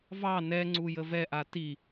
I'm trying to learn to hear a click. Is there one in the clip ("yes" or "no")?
yes